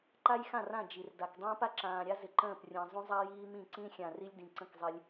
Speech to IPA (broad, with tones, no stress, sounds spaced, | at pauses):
ǃ a˦ j x ã˦˨ r ã˦˨ d͡ʒ i˨ r d a˨ k dˤ ə̃ː˦ p a˦ ǁ ãː˨ ɾʲ a˦ z ɪ˨ ǃ ə̃ː˦˨ p rʲ ə̃ː˨ zˤ ũ˦ zˤ a˦ j iː˦ m ĩ˦˨ ǀ ĩ˦ xʲ ã˨ r i˦ lʲ d ĩ˨ ǀ ə̃˦˨ k zˤ ɪ˦ lʲ